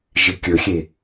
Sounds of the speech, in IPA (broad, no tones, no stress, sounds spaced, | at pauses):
ʒ ɪ kʲ ɵ xʲ e